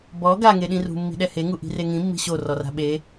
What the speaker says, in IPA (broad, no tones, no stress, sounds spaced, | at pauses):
b ɔ ɡ a ŋ e ɗ ĩ r ṳ mː i̤ ɗ ɛ h e ŋ u ʔ i̤ r e ŋ ĩ mː i̤ ɕ o r ɔ r a̤ ɓ e